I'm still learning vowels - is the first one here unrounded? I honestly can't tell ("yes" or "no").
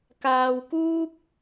yes